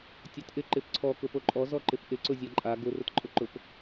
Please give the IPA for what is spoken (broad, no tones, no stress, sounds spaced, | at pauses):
tʲ ɔ t ʔ ɪ ǃ ɪ p ǀʰ ɔ k ʊ p o ǃʼ ɔ z ɔ ǃ ɪ p ʔ ɪ ǀ ʊ zʲ a ǃʼ a ɡ ʊ r ʊ t ǃʼ ʊ ǃ ʊ p